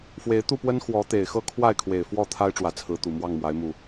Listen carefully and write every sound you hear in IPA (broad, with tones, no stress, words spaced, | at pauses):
fwe˨˦ɪ̯ t̪u˥˨pwə˦n xwɔ˨˦ t̪e˨˩ɪ̯xɤ˥˨ kʰwa˥˨ɪ̯kʰwe˨˩ɪ̯ fwɔ˥˨t̪ʰa˦ɪ̯ ʈ͡ʂwä˨˦t͡sʰɹ̩˨˦t̪u˨˩ mwɑ˥˨ŋmwa˨˦ɪ̯mu˨˩